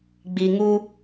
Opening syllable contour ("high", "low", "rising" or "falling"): low